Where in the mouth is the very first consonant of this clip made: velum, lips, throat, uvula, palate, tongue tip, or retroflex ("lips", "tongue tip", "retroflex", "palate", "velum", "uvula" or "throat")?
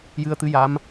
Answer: palate